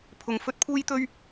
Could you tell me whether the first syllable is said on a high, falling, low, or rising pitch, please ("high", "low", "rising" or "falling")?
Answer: low